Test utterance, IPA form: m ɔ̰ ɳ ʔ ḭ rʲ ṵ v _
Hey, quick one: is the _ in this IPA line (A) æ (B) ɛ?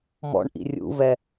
B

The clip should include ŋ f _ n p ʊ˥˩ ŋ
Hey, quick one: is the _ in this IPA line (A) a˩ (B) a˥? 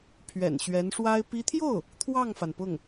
A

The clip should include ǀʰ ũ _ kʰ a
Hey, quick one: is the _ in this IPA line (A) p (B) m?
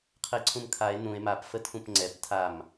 B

